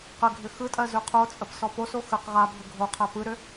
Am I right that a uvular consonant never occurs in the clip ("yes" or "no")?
no